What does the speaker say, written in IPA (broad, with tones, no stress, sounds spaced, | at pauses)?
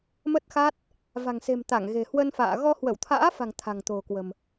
m ə˦˥ t̚ x a˦˥ t̚ | v a̤˨˩ ŋ s e̤˨˩ m t̪ a˧˩ ŋ ɣ e̤˨˩ h w ə˧ n f a̰ː˧˨ ɣ ɔ˧ h w ə˧˩ w t̪ʰ a̰ː˧˥ f a̤˨˩ ŋ t̪ʰ a̤˨˩ ŋ t̪ o̤˨˩ k w ə̤˨˩ m